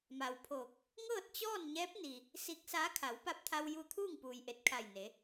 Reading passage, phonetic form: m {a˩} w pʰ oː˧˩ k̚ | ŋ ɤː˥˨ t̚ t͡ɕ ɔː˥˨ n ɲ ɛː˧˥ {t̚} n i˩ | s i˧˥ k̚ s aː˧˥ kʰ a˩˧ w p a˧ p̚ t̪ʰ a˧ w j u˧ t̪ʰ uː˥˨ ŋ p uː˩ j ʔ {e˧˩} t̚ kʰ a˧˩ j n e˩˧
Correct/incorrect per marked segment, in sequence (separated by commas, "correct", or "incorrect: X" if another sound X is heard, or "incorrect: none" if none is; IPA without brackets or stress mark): correct, incorrect: p̚, correct